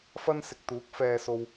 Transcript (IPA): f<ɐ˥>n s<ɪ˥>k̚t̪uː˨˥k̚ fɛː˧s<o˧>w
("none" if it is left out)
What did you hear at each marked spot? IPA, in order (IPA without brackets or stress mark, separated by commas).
ɐ˥, ɪ˨, o˧